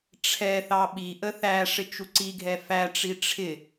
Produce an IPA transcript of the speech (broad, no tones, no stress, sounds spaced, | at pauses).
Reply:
ʈ͡ʂʰ ɛ θ ɑ ɓ i ʔ ə θ æ ʂ ɪ t͡ʃ u ǀ i ɡʱ ɛ f æ ʈ͡ʂ i ʈ͡ʂʰ ɪ